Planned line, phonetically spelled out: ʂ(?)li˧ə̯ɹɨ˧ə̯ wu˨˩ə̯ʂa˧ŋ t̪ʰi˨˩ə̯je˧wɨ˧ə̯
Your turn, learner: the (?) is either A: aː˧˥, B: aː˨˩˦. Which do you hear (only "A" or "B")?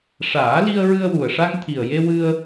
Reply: B